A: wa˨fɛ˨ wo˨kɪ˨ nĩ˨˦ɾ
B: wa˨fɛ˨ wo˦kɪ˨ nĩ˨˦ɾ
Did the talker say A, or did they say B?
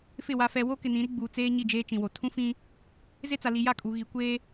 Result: B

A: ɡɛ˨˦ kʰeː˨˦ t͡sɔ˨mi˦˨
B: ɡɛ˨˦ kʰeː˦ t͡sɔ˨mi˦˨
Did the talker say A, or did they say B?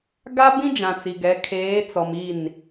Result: A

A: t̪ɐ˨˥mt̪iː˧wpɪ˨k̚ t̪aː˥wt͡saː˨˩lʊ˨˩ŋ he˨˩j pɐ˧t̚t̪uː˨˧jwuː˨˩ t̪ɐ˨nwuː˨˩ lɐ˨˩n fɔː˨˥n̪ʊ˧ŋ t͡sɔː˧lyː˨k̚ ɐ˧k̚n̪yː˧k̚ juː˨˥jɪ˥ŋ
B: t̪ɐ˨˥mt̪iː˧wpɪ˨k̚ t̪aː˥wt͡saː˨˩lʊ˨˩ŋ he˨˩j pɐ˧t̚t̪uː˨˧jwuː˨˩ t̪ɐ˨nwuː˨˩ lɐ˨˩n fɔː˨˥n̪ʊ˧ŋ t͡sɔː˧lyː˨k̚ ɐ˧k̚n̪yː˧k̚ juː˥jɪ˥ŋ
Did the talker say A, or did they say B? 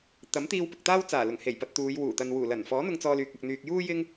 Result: B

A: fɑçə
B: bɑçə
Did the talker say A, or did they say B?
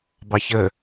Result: B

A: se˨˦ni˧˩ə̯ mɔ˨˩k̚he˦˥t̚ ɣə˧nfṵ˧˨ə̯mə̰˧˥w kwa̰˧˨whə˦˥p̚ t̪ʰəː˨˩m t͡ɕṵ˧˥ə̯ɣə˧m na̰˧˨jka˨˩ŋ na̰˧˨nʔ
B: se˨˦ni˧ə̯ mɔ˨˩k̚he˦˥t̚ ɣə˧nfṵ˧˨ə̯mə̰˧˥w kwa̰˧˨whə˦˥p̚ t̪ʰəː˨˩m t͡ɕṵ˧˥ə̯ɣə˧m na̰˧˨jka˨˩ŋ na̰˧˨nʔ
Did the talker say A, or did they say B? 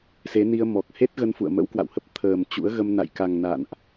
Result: B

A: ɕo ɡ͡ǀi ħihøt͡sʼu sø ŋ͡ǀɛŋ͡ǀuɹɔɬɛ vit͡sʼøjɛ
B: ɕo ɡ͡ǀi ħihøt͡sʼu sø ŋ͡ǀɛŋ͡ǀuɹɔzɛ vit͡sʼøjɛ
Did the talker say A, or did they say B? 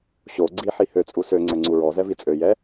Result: B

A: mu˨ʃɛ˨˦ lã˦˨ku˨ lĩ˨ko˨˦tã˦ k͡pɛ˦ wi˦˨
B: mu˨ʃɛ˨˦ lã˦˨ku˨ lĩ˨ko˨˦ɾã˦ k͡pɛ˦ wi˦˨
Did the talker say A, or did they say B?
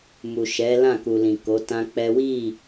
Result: A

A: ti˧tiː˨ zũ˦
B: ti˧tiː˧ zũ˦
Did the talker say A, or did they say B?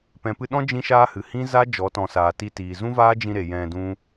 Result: A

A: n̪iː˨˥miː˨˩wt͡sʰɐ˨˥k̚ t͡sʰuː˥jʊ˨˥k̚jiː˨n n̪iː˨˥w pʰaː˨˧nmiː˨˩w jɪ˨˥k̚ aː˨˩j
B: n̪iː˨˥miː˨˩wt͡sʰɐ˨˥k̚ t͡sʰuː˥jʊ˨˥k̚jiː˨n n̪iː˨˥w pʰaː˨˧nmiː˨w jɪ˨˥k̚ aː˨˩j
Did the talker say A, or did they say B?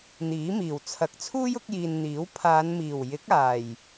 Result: A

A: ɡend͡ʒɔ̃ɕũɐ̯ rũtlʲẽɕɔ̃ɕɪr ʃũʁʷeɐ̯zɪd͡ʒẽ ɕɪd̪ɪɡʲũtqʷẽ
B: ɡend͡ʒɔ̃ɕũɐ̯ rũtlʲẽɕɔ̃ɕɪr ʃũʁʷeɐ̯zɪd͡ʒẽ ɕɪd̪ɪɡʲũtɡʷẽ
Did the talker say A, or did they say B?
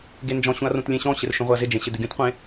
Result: A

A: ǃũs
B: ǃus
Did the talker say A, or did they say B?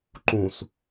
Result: A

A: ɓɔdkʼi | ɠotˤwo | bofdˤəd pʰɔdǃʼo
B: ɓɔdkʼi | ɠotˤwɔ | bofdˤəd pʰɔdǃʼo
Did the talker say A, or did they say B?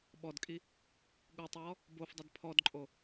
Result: B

